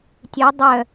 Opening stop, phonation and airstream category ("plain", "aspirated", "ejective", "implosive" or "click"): plain